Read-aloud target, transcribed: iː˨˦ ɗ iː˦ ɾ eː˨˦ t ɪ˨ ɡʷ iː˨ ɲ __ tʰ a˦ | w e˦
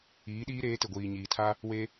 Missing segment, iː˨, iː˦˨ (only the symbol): iː˨